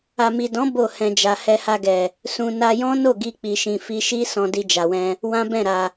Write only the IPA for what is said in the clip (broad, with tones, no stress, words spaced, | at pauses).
a˨mi˨dɔ̃˨˦ bo˦˨ hɛ̃˨ d͡ʒa˨ hɛ˧ha˧ɡɛ˨ | sũ˧ na˧jɔ̃˦ no˦˨ɡi˧k͡pi˨ʃĩ˨ fi˧ʃi˦ sɔ̃˧di˧d͡ʒa˨wɛ̃˧ | wã˦bɛ̃˦˨ ɾa˨